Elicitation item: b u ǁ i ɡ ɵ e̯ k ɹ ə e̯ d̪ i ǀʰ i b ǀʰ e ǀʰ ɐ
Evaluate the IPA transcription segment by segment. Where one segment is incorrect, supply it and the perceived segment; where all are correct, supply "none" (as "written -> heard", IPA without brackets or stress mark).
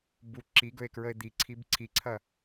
e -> i